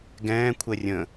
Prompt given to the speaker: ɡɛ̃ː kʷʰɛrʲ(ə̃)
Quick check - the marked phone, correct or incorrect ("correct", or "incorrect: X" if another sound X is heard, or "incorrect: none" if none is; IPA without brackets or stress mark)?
correct